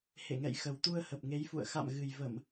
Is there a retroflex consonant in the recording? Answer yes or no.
no